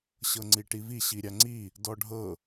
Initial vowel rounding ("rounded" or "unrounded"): unrounded